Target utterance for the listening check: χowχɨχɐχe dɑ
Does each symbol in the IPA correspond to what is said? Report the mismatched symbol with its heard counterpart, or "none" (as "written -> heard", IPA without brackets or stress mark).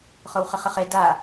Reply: ɑ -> a